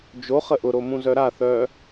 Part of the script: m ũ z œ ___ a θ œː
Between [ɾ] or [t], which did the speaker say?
ɾ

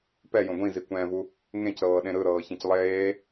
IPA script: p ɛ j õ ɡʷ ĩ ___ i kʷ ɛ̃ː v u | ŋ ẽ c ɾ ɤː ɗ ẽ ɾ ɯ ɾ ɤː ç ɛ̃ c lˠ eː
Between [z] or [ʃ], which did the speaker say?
z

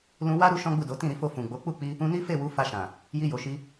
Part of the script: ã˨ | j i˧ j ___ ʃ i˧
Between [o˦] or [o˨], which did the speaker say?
o˨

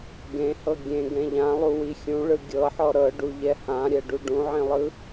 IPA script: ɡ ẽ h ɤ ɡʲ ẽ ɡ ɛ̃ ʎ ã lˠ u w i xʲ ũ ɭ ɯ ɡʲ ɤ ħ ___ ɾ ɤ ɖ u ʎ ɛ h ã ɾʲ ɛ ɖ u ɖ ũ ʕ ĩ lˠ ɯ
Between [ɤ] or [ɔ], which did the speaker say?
ɔ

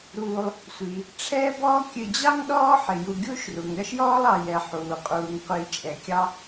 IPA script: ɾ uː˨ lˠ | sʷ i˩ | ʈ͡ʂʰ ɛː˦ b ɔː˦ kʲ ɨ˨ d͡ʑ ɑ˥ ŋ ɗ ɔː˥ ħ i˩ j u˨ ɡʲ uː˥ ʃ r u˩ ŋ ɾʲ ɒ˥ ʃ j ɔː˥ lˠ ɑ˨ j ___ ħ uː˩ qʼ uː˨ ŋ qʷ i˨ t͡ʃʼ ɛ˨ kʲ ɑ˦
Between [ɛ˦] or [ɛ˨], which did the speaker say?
ɛ˨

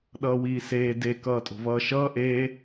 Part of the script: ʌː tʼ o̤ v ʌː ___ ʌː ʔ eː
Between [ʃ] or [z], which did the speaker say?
ʃ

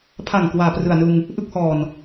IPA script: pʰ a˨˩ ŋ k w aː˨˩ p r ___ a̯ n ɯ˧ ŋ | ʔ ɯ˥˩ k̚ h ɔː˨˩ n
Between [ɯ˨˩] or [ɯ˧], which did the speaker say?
ɯ˨˩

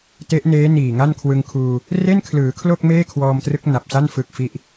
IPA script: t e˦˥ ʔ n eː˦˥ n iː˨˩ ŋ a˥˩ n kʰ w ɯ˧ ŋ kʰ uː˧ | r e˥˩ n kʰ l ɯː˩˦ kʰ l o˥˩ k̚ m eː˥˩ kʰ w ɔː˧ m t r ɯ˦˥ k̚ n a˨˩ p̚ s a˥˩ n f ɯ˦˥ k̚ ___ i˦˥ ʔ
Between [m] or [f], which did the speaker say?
f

